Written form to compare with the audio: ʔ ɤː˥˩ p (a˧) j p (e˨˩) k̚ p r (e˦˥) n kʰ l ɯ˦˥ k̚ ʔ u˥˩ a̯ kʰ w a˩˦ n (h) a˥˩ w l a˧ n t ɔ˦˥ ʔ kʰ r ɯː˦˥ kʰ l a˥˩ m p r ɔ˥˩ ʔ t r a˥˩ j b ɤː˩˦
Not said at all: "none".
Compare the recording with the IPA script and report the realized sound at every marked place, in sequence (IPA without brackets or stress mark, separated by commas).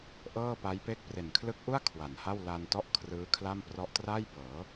a˦˥, e˥˩, e˨˩, h